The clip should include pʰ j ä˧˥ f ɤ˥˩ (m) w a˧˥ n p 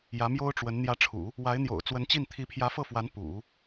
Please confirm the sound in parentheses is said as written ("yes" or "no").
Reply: no